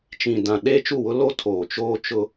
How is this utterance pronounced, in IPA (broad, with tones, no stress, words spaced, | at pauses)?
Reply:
t͡ʃĩ˨dã˨ ɗeː˦t͡ʃu˦˨wʊ˦ lo˦ tʰoː˨ t͡ʃoː˦t͡ʃʊ˦